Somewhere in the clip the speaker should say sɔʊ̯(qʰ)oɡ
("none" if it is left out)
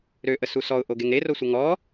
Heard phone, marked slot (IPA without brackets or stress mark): ʔ